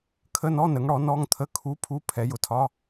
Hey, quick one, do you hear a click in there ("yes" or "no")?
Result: no